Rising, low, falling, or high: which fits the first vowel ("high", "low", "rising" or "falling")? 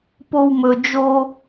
high